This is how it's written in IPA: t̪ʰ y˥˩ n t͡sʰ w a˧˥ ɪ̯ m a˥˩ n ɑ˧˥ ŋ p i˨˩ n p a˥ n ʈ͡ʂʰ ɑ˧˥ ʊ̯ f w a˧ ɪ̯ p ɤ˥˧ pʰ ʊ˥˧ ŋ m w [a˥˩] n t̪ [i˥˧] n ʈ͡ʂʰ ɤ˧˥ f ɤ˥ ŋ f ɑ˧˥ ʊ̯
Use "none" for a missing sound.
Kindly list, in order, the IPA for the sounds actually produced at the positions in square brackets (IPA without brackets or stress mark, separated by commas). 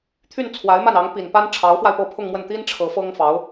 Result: ə˥˩, i˥